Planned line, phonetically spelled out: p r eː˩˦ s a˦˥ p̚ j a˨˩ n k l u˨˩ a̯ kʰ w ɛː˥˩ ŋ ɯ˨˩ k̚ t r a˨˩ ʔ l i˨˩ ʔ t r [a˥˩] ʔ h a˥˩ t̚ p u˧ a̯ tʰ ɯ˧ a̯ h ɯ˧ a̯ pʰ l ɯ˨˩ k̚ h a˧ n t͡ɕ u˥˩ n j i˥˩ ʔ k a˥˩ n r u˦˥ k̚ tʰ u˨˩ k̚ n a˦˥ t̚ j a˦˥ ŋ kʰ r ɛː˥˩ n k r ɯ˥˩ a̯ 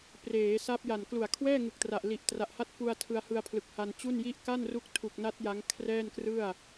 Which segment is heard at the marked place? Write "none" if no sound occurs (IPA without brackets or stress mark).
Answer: a˨˩